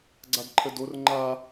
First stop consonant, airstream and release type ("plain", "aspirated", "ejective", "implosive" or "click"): click